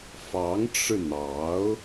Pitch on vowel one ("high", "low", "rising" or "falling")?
rising